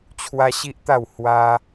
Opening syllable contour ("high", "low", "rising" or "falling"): high